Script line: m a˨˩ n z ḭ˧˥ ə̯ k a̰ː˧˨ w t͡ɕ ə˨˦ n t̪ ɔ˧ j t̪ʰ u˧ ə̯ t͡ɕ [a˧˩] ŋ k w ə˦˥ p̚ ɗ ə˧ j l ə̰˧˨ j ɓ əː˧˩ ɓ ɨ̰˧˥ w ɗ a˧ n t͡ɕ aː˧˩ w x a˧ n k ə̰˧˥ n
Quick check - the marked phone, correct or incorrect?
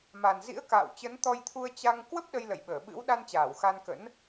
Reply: incorrect